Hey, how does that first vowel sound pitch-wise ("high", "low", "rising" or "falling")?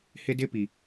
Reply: high